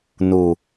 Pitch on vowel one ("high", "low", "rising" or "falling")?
low